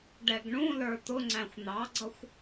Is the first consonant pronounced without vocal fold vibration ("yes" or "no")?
no